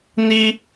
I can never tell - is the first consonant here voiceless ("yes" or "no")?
no